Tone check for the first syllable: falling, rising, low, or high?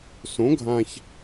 rising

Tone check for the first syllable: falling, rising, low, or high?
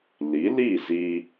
rising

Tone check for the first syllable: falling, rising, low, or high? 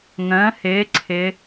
rising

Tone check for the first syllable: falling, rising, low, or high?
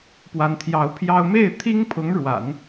rising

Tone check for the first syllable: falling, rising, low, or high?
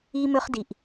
high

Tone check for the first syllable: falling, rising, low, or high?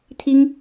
high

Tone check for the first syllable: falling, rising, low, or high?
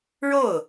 falling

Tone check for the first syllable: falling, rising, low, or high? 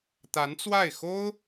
rising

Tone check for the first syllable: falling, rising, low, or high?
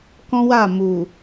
high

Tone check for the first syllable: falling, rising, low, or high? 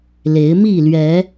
rising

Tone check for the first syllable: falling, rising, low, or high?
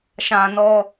high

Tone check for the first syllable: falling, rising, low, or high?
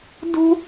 high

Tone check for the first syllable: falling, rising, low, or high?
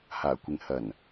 low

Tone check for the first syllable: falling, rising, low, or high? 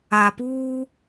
low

